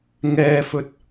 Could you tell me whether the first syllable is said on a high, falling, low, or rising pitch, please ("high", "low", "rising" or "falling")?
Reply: high